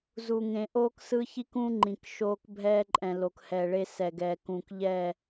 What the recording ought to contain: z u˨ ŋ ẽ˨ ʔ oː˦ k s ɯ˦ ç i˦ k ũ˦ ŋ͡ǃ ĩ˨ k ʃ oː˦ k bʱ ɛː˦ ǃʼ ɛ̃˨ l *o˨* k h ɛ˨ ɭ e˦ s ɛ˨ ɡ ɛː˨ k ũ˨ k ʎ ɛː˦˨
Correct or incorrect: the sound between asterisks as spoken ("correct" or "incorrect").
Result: correct